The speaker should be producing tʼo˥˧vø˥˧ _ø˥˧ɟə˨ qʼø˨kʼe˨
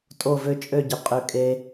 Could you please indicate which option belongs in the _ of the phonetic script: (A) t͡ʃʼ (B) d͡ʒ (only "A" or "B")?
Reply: A